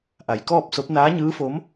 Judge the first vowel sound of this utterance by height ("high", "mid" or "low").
low